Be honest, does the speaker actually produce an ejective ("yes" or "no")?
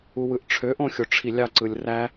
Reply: no